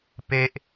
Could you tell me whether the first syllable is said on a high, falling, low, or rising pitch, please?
high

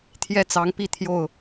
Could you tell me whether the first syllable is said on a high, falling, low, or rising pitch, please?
high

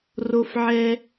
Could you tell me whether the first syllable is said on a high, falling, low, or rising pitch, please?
low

